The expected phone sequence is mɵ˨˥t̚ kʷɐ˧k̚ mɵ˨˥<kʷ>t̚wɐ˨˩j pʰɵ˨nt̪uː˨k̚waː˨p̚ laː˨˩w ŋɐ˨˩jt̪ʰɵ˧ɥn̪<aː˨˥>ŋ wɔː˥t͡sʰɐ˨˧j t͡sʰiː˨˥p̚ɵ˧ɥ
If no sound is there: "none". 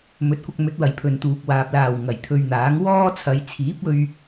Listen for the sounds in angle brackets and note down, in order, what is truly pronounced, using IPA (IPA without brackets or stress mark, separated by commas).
none, aː˨˥